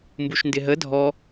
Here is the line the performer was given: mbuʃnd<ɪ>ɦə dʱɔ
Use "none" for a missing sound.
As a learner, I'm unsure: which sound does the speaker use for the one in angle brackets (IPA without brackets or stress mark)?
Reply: ɪ